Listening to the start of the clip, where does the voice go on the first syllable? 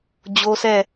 high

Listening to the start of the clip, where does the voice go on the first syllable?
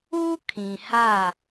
high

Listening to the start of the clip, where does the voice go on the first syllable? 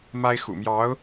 high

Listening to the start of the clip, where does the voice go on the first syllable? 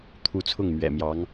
falling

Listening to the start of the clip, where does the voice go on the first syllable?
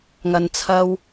low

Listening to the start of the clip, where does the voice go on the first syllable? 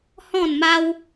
falling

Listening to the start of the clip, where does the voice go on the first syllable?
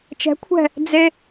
rising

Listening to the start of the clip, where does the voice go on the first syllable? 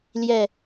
falling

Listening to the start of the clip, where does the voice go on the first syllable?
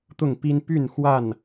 falling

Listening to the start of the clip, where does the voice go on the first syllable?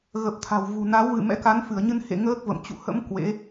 low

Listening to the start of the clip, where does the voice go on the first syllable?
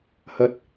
high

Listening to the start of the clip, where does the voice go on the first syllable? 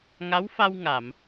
rising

